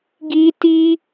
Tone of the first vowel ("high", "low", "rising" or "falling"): high